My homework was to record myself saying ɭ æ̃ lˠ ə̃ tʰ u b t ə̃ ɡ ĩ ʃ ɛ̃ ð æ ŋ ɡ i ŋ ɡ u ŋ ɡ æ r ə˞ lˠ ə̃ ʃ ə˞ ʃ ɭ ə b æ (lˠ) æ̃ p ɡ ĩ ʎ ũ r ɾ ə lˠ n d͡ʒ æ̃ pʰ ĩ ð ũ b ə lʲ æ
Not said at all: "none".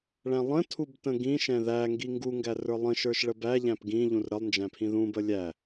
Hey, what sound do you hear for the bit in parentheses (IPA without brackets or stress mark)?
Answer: ʎ